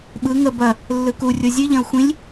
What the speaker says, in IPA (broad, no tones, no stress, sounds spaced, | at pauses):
ɓ ɯ ŋ ə b ɐ | lː ɯ k u rʲ o zʲ ɨ ʎ ɐ̃ u̯ xʷ ĩ lʲ